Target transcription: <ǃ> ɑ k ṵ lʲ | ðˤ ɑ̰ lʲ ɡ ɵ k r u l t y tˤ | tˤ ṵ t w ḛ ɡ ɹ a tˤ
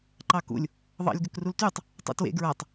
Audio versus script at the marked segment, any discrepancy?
no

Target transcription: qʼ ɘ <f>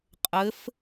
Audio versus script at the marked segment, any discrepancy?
no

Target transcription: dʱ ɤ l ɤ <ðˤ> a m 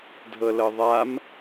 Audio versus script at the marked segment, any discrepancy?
no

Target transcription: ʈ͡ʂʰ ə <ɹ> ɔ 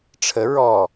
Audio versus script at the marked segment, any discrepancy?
no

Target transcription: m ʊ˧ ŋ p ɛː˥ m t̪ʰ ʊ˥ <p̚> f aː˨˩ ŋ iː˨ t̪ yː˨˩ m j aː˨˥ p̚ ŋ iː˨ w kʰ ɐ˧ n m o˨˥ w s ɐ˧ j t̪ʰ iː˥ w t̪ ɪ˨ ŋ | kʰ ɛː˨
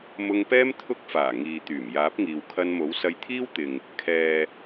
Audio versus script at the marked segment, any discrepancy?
yes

